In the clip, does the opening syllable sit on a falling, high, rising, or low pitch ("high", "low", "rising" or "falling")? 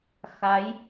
rising